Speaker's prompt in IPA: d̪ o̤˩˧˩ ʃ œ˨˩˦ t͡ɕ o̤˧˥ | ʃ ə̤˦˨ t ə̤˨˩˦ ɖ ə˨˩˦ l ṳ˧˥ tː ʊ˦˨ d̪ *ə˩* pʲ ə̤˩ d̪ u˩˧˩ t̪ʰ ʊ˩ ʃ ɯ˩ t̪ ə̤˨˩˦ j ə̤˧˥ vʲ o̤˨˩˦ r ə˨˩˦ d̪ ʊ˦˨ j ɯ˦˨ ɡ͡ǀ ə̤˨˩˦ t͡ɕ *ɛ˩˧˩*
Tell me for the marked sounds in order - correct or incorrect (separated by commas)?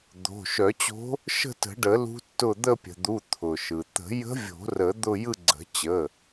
incorrect, incorrect